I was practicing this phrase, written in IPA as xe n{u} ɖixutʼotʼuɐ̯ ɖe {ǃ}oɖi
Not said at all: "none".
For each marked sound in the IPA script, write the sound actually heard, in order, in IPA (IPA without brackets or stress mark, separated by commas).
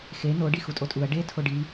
o, tʰ